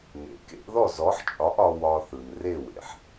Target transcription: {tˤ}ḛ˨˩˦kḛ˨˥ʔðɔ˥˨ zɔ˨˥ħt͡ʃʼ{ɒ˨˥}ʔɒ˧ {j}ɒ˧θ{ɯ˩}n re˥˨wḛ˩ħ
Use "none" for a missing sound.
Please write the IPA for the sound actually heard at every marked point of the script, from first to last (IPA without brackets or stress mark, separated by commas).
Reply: n, ɒ˨˥, w, ɯ˩